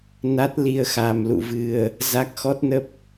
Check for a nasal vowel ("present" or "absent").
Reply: absent